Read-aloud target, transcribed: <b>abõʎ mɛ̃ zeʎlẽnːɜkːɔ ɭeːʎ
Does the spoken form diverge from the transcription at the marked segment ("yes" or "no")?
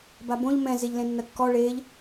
no